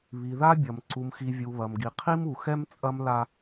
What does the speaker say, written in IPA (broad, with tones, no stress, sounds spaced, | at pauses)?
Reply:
β i˨ ð a˦ bʲ ɐ˨ m ǀ u˨ m x i˨ vʲ u˨ β ɐ˨ m ɡ i˨ qʰ i˦ m u˨ x ɛ˦ m t͡sʼ ɐ˦ m l a˦